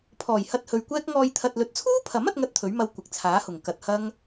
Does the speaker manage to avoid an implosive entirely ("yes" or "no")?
yes